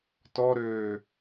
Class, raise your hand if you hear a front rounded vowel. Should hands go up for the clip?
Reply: yes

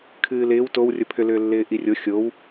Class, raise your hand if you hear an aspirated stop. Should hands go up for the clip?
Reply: yes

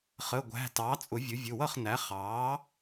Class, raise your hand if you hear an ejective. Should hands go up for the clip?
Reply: yes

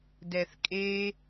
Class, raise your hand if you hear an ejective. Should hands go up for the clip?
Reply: yes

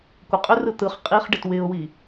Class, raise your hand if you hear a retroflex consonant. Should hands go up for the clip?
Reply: yes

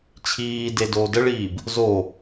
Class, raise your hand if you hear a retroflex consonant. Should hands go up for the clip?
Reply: yes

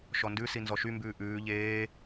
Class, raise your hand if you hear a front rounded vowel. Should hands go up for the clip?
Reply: yes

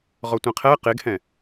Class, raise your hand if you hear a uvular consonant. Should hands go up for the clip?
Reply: yes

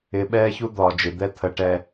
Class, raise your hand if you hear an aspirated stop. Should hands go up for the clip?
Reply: yes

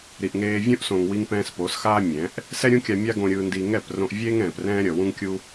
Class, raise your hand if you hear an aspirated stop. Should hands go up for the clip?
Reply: no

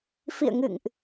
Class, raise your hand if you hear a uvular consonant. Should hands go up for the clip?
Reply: no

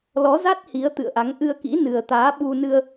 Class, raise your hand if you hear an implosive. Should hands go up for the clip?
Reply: yes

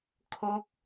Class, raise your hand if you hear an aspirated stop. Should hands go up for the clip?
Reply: yes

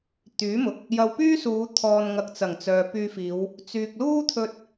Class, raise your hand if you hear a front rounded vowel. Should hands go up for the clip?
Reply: yes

